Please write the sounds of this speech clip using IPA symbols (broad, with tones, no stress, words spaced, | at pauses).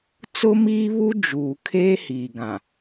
t͡sʊ˦miː˦ βu˦ d͡ʒuː˨kʰeː˦ hiː˨ɡã˨